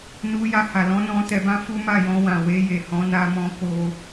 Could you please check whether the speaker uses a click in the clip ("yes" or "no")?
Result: no